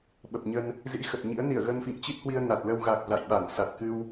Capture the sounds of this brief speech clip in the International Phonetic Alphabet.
ɓ ə˨˩ p̚ ɲ ə˧ n | z ḭ˧˥ x ə˨˩ t̚ ɲ ḭ˧˥ ə̯ n i˧˩ ə̯ ɣ ə˧ n f ḭ˧˨ ŋ t͡ɕ i˦˥ t̚ h w i˧ ə̯ n a˨˩ t̚ l ə˧ w ɣ a˨˩ k̚ z a̰˧˨ j ɓ a˧˩ n s a˨˩ t̚ k ɨ˧ w

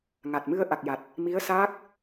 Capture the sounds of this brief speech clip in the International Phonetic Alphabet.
ŋ a˨˩ t̚ m ɨ˧ ə̯ ʔ a˨˩ k̚ j a˨˩ t̚ | m i˧˥ ə̯ s aː˦˥ k̚

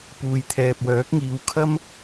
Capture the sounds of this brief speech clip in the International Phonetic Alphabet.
p uː˨ j t̪ʰ ɛː˨ p̚ w œː˨˥ k̚ ŋ iː˨˧ w kʰ ɐ˥ m

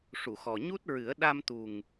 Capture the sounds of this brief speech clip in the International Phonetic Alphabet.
ʂ u˨˩˨ x ɔ˨˩ ɲ u˦˥ t̚ ɹ ɨ˨˩˦ ə̯ ɗ a˧ m t̪ u˨˩ ŋ

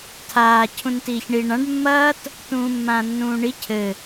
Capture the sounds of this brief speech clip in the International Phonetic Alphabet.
tʰ aː cʰ ũ n t iː ç ɳ i ɳ ã ɖ mː ɐː t | t ũː mː ãː nː ũː ɳ i cʰ ɘ

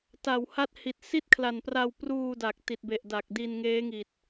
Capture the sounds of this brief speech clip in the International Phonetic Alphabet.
t a˨˩ w h a˦˥ t̚ h i˨˩ t̚ s i˥˩ t̚ kʰ l a˨˩ n p r a˧ w p r uː˧ d a˨˩ k̚ t i˨˩ t̚ b e˨˩ ʔ d a˨˩ k̚ d i˧ n ŋ eː˦˥ ŋ i˨˩ t̚

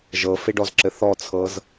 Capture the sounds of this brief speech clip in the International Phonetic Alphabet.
ʒ ɤ f e ɖ ɔ z ǁ ɘ θ ɔ t͡sʰ ɤ z

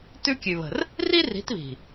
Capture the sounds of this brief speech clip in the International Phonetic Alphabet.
t ʉ˦ kʲ ʉ˨ β ə̤˨ r | r i˦ r i̤˨˦ t β i̤˨

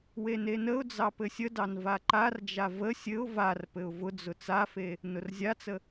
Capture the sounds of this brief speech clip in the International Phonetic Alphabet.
w e n e n ə ʊ̯ d͡z ɑ p ɘ sʲ ə d ɑ n v a ǃ a r d͡ʒ a v ə sʲ ɘ ʊ̯ v a r p ɘ ʊ̯ v ʊ d͡z ʊ t͡s a f e | n ʊ r zʲ a t͡s ə

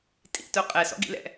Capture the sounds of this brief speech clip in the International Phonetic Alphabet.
tʼ ḭ t œ qʼ ɛ s ɔ̰ ɡ ḭ l ɛ̰

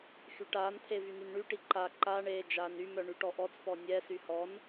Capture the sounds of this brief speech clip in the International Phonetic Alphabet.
x y ʈ aː n t̪ʰ e v y n y n ɳ y ʈ i ǃ a ǃ a ɳ eː d͡ʒ aː n y m œ ɳ y ʈ ɔ ʔ ɔ t͡s p ɔ nʲ ɛ s y h ɔ n

